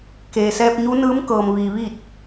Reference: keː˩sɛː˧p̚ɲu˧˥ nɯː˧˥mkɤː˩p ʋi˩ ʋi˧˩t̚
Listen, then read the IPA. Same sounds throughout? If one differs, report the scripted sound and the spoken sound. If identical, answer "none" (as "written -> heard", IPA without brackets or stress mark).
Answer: p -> m